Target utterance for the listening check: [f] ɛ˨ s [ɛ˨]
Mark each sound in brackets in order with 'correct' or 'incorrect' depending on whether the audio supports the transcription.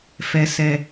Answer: correct, correct

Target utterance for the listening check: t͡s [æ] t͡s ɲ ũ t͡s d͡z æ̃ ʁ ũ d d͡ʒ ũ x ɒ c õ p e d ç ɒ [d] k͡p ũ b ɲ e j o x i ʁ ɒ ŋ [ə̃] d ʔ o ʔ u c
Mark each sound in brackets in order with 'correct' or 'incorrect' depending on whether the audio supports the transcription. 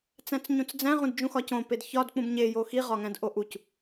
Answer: incorrect: æ̃, correct, incorrect: æ̃

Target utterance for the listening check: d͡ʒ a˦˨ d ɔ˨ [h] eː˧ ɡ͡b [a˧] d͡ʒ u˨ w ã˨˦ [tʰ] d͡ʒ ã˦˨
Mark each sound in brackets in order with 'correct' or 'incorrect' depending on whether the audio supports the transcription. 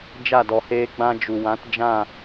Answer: correct, incorrect: ã˧, incorrect: t

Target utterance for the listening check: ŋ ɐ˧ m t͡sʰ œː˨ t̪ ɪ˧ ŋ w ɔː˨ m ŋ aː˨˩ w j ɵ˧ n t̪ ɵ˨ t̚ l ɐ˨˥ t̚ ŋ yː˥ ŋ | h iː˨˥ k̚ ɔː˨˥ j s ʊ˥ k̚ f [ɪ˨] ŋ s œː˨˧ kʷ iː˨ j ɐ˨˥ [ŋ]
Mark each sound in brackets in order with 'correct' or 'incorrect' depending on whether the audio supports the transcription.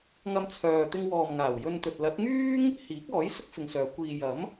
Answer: correct, incorrect: m

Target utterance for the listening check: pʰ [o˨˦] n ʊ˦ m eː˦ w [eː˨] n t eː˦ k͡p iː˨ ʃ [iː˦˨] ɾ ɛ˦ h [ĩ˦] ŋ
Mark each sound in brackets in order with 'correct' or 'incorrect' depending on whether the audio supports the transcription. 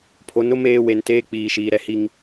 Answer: correct, incorrect: e˨, incorrect: iː˨, incorrect: i˦

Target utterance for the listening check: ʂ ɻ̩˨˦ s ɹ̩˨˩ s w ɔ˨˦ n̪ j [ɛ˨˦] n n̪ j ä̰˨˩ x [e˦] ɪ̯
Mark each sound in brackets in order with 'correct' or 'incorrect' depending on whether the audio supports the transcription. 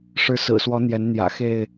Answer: correct, incorrect: e˥˨

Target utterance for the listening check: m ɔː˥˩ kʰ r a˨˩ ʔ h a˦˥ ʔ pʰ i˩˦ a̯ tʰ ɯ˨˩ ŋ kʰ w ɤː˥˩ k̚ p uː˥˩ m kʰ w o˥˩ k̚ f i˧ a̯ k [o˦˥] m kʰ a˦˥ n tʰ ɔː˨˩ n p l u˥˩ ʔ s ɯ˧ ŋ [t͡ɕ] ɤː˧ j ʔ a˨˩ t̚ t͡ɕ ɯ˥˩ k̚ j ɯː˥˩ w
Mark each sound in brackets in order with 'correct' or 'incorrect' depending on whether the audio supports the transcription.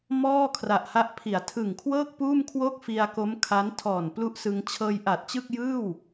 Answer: correct, incorrect: t͡ɕʰ

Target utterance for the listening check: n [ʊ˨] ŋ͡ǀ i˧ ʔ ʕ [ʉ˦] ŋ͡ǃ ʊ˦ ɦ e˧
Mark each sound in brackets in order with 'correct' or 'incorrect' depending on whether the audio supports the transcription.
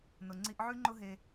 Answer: correct, correct

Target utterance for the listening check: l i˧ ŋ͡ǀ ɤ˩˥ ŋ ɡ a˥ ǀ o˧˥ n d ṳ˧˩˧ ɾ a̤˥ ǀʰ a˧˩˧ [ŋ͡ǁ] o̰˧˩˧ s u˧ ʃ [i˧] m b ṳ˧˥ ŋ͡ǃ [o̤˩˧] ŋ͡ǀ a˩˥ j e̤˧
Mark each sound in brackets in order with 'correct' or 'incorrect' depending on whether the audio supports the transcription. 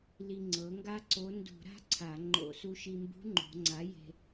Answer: incorrect: ŋ͡ǃ, correct, correct

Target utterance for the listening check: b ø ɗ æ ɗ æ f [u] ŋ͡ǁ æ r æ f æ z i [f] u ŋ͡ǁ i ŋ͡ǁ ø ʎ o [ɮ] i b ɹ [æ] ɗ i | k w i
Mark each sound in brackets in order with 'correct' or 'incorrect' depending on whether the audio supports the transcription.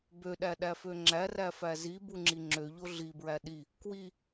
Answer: incorrect: ø, incorrect: b, correct, correct

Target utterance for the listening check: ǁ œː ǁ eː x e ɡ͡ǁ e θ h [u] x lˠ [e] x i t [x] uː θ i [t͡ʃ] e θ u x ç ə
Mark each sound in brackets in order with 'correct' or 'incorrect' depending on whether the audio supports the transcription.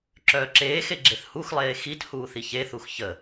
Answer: correct, incorrect: eː, incorrect: h, incorrect: ç

